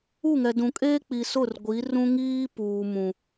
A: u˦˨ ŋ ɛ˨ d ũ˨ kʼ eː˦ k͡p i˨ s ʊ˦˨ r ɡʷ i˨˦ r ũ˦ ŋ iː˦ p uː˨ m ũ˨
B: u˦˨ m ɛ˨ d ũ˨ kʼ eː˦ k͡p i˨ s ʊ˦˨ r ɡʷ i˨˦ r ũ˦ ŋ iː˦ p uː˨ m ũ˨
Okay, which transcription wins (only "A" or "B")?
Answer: A